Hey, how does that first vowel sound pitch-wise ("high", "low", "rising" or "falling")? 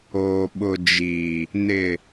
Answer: low